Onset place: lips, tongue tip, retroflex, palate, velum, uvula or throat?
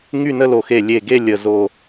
velum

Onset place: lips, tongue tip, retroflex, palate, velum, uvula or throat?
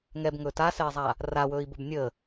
velum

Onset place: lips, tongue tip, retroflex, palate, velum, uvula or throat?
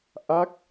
throat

